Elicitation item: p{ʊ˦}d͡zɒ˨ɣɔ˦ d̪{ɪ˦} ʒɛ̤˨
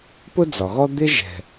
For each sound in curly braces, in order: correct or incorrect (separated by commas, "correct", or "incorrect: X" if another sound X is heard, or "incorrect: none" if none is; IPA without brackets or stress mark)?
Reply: correct, correct